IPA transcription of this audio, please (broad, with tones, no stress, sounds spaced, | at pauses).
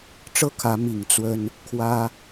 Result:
ʈ͡ʂ ɤ˥˩ kʰ ä˧˥ m i˨˩ ŋ t͡s w ə˥ n | kʰ w ä˥